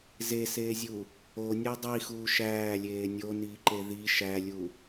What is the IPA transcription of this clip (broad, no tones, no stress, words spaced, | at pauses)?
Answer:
zeseːzʲu | onʲu dˤixuː ʃæːlʲeː nʲoniːǃe ði ʃælʲu